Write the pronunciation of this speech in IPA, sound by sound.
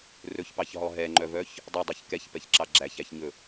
r ɵ ç p ɑ ç ɦ ɔ ɦ ɛ ŋ͡ǃ œ v œ ç | dˤ œ dˤ ɛ ç k ɛ ç p ɛ ç ǁ ɑ ɡ͡ǁ æ ç æ ç ɲ ɵ

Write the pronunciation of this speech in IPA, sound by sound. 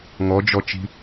ŋ ɔ d͡ʒ ɔ t͡ʃ i̤

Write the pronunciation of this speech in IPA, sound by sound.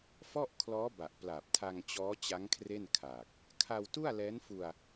f ɔ˥˩ ʔ kʰ l ɔː˦˥ b a˨˩ ʔ p l a˨˩ p̚ tʰ a˧ ŋ t͡ɕ ɔː˦˥ t͡ɕ a˦˥ ŋ kʰ r e˥˩ n kʰ aː˨˩ k̚ | kʰ a˧ w t u˥˩ a̯ l ɛː˦˥ n f u˧ a̯

